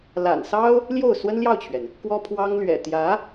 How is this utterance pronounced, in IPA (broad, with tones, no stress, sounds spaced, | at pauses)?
l a̰˨˩ n s ɑ˥ ʊ̯ | l j o˥˩ ʊ̯ s w ə˥ n l j ɑ˥˩ ʊ̯ t͡ɕʰ ɥ ɛ˩ n | k w ɔ˥ pʰ w ɑ˥ ŋ l ɥ ɛ̰˨˩ t̪ j ä˧˥